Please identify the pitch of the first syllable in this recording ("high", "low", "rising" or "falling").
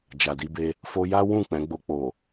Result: low